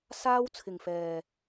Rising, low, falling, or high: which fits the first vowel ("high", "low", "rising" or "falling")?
high